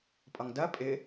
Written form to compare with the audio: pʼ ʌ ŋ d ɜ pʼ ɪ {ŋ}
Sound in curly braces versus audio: incorrect: none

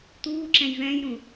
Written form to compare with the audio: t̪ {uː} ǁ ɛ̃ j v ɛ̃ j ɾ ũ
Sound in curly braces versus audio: correct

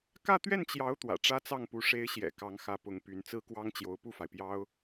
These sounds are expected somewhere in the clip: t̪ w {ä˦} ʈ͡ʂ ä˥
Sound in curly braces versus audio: incorrect: ä̰˨˩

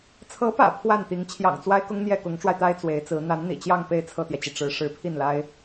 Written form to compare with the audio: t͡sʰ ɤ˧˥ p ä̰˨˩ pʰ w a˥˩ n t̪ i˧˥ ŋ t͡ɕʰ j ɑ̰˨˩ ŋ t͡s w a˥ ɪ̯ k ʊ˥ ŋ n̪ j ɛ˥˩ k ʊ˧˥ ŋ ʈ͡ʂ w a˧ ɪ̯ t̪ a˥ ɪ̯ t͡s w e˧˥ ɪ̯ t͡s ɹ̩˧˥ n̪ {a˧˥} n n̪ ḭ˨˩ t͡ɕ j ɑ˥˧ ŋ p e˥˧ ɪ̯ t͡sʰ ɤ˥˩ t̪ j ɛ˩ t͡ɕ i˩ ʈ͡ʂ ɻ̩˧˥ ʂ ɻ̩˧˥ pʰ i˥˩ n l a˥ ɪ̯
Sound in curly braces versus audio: correct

